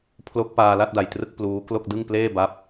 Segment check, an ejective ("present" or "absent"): absent